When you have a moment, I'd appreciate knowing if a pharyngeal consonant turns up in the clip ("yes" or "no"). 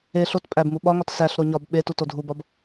no